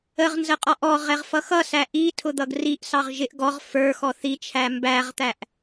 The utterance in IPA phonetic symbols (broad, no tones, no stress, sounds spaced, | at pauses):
ə ʁ n z ə qʼ ɔ ʔ ɔ ʁ ɛ ʁ f ʌ x ʌ s æ ʔ i tʰ ʊ d̪ ʌ ɡ r i ʔ s ɑ ʁ ʒ ɪ ʔ ɡ ɔ ʁ f ə˞ x ɔ θ i t͡ʃʰ æ m b æ ʁ t̪ æ ʔ